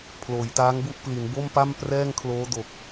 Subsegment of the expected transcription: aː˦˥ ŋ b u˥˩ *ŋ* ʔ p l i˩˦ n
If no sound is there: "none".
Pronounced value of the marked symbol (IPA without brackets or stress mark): none